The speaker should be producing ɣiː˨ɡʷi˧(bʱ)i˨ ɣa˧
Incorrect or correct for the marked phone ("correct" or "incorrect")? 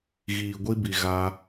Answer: incorrect